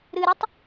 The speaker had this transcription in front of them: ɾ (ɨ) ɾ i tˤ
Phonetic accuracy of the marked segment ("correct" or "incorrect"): correct